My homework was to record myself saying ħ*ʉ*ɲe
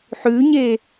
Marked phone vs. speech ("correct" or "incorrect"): correct